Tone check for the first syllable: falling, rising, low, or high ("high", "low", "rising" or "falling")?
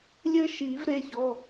high